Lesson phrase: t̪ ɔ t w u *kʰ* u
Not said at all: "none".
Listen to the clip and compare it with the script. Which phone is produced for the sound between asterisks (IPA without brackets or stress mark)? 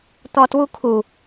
kʰ